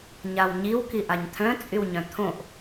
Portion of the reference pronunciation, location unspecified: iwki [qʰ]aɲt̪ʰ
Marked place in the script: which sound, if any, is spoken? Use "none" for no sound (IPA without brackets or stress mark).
ʔ